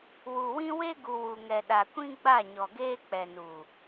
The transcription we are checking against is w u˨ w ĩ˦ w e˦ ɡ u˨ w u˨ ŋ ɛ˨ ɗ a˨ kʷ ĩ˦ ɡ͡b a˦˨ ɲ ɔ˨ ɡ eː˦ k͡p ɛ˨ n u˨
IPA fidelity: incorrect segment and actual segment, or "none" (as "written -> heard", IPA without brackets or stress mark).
none